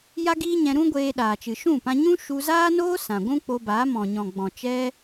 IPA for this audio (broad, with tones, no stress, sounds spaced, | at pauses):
j a˦ ɡ iː˦ ɲ ɛ̃˧ ɾ ũ˦ ɡʷ eː˧ ɗ aː˨ t͡ʃ ɨ˨ ʃ ũ˦˨ p ã˧ ɲ ũ˦ ʃ u˧ z aː˦ n oː˦ s ã˨ ɡʷ ũ˦ k͡p o˧ b aː˨˦ m ɔ̃˨ ɲ ɔ̃˨ ɡ͡b ɔ̃˨ t͡ʃ ɛ˦